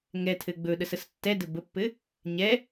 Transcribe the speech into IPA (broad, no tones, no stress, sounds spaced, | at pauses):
ŋ ɛ tʰ ɘ ɡ͡b ɵ ɗ ə s ə s tː ɛ d ɘ b ə pː ɘ | ɲ ɛ